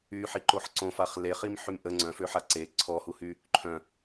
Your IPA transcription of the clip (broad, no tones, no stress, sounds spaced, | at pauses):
y ħ i ǃ o ħ ǀ õ f a χ l e χ i m ħ y m ʔ ə ŋ͡ǀ œ̃ f ø ħ a ǀ e ǀʰ ɔ h u h y | ǃʰ œ̃